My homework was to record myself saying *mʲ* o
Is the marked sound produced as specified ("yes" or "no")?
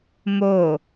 no